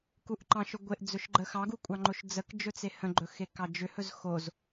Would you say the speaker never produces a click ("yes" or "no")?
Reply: no